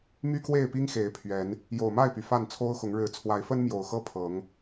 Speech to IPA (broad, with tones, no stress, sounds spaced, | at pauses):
m y˦ k w e˥˨ ɪ̯ p i˦ ŋ x e˨˦ ɪ̯ pʰ ɥ ɛ˨˦ n | j o˨˩ ʊ̯ m a˥˨ ɪ̯ p y˩ f a˥˨ n t͡sʰ o˦ ʊ̯ x ʊ˨˦ ŋ ɻ ɻ̩˨˦ t͡sʰ w a˨˦ ɪ̯ f ə˦ n m j o˨˩ ʊ̯ x ɤ˦ pʰ ɤ˨˦ ŋ